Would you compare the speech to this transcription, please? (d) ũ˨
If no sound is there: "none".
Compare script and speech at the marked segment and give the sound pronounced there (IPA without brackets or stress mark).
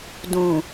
d